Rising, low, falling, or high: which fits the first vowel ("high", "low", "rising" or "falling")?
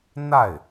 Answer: falling